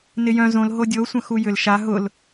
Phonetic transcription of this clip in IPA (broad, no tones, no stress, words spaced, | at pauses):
nɪjœ̃ zõl ɦodʲo sʷɐ̃xujʏl ʃa ɦʊl